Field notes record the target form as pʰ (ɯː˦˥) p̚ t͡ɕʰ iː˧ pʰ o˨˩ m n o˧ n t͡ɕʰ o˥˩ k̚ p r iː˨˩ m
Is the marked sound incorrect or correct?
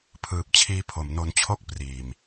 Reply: incorrect: ɯː˨˩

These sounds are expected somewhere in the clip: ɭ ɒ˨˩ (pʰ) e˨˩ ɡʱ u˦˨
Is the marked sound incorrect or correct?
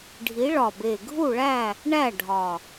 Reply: incorrect: b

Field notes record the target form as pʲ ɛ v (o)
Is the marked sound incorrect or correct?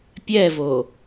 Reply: correct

